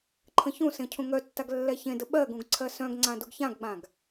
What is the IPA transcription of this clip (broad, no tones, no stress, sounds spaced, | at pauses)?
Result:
ǃʰ ə̃ ç ũ s ẽ cʰ ũ ŋ œ tː a ɡ lː ɛ ç ẽ d ə ɓ ɜ ɡ ũ ɡ ǀʰ ɜ s œ̃ ɡ ŋ͡ǀ ã d u ɡ ç ã ɡ ɡ͡b ã ɡ